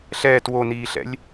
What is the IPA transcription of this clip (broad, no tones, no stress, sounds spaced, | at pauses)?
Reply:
ɬ ɛː t w o n iː ɬ ɛ̰ lʲ